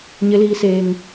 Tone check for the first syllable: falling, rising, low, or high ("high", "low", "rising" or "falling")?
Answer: high